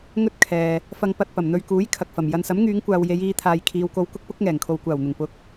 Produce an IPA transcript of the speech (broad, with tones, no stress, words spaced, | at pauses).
ŋɵ˥t̚ kʰɛː˨ | fɐ˧ŋ pɐ˧t̚pɐ˨˩mn̪ɵ˧ɥkuː˨˥j kʰɐ˨k̚fɐ˨˩m jɐ˨nsɐ˨˥mŋyː˨˧ŋkʷaː˨w je˨˧jiː˨˧ t̪ʰaː˨jkʰiː˨˧wko˧w kʊ˥k̚pʊ˨˥k̚ ŋɛː˨˩ŋkʰo˨wkʷaː˨˩wn̪ʊ˨˩ŋ pʊ˨˥k̚